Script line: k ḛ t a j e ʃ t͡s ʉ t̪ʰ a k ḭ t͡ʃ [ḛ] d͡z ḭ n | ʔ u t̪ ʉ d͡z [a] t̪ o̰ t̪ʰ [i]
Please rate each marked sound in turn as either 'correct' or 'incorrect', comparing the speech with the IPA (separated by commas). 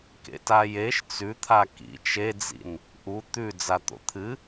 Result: incorrect, correct, incorrect